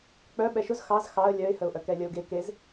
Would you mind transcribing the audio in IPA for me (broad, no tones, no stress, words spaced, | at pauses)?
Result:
k͡pœ ɓɛʃʊz xɑz xɑə̯ lʲœɪ̯həʊ̯ʔœ kɛlʲəʊ̯ɡe kez